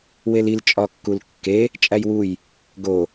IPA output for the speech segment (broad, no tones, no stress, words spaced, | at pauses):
welil t͡ʃʼɒkːulkːe | t͡ʃʼæjwuj | ɡo